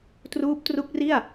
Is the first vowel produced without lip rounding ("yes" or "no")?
no